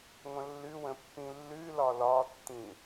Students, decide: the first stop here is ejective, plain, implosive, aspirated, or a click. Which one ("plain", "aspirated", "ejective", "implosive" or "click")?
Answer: plain